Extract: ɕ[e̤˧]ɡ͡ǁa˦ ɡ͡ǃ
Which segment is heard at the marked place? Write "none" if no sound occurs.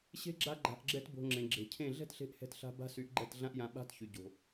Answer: e̤˦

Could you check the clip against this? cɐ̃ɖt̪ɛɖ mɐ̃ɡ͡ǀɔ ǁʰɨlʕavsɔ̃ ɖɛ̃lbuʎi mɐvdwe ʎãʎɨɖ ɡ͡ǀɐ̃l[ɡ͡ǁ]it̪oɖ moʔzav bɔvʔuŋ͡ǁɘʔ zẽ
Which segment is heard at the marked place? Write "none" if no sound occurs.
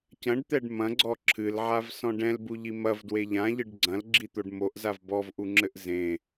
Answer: ɡ͡ǁ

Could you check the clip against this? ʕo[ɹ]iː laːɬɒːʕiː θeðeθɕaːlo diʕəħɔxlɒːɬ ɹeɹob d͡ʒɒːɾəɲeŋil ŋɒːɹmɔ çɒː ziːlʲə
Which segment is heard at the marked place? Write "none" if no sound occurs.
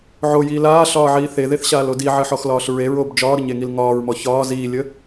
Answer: j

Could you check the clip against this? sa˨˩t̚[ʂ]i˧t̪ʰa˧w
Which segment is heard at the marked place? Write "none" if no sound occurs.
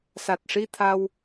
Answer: ʂ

